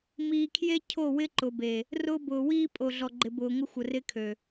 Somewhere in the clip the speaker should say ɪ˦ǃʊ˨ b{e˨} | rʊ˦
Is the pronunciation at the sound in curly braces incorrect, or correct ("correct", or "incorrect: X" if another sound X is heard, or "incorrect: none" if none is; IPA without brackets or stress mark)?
correct